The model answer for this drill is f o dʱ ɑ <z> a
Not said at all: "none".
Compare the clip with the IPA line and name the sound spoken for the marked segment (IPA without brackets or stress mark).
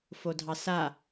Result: s